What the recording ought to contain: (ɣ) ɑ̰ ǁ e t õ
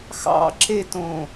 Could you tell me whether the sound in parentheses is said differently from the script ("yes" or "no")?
yes